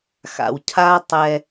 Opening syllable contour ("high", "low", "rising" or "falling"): low